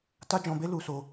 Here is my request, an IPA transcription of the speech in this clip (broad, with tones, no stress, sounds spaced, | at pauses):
t a˦ d͡ʒ ɔ̃˧ b e˦ l u˧ s o˧